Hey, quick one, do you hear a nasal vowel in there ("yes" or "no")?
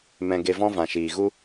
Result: yes